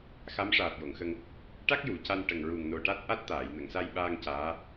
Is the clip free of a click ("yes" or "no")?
yes